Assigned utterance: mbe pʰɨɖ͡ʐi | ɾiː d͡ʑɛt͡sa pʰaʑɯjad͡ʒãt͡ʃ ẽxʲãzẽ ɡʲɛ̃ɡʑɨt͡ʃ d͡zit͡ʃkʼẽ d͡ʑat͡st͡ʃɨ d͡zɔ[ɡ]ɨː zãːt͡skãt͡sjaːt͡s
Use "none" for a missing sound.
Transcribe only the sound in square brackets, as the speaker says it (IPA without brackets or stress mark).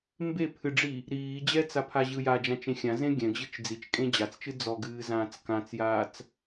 ɡ